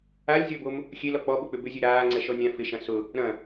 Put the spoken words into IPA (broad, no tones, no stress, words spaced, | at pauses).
alʲzʲɔbom | xʲelɔ k͡pɔɓʊk͡pʏ bʏzʲø ɾaːŋ͡ǀɛʃɔ nʲã fɪʃɐ̃ sʊ | ɾɐ̃